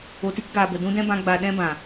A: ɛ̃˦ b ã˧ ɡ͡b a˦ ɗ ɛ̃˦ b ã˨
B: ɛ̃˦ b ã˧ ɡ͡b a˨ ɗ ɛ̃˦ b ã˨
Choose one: B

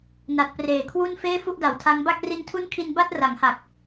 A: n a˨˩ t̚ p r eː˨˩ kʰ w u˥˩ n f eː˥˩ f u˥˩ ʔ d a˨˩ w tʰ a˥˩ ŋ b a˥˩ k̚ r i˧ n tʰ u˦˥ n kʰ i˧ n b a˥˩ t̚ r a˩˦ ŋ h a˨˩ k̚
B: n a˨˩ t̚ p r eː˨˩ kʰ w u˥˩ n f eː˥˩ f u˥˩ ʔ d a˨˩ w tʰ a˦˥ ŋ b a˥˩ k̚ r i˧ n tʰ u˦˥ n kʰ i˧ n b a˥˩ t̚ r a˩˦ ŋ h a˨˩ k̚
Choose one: B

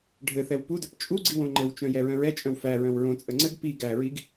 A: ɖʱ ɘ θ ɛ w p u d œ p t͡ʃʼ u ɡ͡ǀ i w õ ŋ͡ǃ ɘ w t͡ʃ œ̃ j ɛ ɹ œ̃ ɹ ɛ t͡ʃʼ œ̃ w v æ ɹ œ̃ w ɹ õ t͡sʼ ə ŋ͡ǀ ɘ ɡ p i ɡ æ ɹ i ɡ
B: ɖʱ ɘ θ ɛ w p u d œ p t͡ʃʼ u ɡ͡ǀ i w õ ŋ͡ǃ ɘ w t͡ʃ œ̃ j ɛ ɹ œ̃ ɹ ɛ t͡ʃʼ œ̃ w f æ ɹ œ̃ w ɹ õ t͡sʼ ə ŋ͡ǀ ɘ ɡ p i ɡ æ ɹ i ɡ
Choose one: B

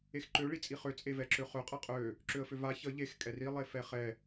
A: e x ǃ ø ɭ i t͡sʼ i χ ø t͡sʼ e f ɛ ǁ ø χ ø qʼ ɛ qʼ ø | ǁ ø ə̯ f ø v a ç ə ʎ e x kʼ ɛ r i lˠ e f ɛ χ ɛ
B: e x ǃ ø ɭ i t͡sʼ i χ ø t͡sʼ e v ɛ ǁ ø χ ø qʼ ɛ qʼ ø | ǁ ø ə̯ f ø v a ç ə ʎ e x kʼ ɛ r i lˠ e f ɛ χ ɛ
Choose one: B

